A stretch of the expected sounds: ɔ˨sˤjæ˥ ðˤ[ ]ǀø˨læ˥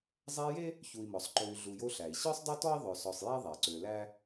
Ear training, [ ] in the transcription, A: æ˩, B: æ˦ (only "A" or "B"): A